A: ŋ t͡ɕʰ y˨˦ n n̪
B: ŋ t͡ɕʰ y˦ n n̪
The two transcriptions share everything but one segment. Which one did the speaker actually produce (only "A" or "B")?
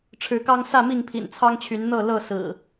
A